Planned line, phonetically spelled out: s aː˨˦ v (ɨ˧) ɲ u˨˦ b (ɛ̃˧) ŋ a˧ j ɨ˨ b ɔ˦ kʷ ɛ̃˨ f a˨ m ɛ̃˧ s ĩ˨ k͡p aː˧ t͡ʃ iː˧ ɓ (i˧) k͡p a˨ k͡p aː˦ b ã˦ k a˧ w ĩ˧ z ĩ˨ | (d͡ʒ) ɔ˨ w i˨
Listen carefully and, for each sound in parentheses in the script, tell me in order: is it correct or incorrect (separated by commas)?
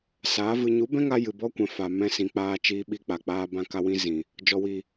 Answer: correct, incorrect, correct, correct